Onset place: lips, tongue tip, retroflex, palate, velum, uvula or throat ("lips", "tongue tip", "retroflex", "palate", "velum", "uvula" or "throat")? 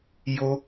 palate